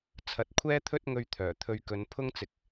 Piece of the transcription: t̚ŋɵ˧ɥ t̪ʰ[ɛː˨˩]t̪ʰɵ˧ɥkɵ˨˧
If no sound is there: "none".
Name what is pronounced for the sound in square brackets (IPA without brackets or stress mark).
œː˨˩